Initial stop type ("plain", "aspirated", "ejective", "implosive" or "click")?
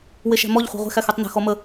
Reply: plain